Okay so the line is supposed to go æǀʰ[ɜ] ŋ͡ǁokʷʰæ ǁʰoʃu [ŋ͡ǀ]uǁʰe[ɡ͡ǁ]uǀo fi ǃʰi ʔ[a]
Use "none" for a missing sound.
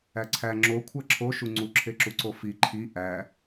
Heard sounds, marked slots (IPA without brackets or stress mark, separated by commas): æ, ŋ͡ǀ, ǁ, æ